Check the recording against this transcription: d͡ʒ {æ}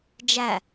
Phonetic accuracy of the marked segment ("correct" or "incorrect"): correct